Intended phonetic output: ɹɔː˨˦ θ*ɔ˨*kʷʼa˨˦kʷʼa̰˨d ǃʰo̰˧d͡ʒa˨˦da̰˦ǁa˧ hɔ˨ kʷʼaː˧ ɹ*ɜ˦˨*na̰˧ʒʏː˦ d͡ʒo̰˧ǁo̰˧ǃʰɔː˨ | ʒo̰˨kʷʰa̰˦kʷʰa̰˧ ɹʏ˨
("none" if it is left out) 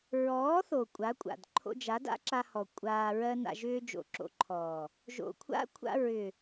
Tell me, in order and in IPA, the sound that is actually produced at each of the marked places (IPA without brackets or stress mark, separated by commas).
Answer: o˨, ɜ˦